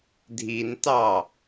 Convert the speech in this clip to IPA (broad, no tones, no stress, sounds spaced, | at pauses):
dʱ i n t ɑ